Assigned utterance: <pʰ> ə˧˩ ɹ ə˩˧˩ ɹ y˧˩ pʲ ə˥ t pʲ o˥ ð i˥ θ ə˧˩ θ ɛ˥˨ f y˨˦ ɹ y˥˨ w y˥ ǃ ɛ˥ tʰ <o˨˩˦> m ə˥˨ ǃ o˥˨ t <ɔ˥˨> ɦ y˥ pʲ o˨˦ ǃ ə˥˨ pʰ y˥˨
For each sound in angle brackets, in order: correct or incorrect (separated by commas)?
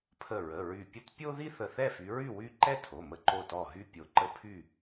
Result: correct, incorrect, correct